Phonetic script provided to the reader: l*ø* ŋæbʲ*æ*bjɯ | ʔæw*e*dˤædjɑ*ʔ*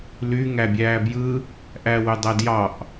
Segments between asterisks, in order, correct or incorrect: incorrect, incorrect, incorrect, correct

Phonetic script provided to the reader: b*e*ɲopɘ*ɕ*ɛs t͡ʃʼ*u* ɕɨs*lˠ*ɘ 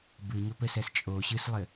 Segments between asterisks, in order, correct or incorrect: incorrect, incorrect, incorrect, correct

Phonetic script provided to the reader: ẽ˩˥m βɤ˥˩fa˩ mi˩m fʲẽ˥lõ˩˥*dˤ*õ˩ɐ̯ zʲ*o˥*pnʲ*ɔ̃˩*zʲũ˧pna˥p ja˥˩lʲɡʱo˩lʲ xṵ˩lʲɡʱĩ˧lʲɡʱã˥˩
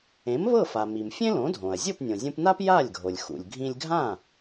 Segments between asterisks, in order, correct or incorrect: incorrect, incorrect, incorrect

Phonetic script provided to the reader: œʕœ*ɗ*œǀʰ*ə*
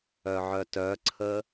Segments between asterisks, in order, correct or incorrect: incorrect, correct

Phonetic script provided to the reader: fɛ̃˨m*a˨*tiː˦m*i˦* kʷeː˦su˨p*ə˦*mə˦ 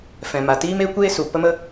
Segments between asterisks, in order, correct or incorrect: correct, incorrect, correct

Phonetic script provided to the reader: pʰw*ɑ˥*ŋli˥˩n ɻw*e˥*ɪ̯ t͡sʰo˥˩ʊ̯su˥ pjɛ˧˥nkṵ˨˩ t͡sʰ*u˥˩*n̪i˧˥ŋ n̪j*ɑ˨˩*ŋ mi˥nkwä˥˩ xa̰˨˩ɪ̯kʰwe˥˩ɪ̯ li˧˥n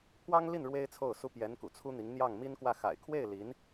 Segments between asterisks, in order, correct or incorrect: correct, correct, incorrect, incorrect

